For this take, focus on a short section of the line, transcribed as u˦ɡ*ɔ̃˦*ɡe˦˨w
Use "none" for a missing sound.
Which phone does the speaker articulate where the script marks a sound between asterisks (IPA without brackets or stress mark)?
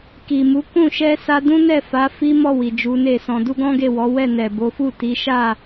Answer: ɔ̃˦